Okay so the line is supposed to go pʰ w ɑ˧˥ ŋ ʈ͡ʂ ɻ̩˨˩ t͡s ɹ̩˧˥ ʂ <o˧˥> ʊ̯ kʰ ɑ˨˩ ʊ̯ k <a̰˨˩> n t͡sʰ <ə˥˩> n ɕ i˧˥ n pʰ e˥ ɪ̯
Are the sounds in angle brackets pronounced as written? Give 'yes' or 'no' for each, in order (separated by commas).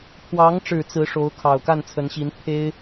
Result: yes, no, no